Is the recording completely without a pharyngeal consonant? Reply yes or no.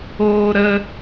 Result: yes